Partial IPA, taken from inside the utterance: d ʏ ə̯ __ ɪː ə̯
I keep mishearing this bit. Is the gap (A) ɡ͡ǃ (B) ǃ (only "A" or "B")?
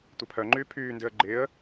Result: A